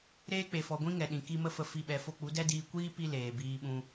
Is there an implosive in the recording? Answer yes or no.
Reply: yes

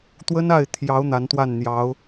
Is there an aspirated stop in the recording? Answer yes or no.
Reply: yes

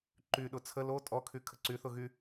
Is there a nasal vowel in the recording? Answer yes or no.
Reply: no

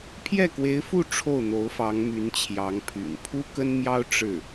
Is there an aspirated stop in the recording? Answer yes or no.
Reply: yes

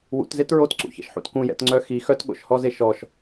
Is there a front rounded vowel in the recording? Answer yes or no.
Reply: yes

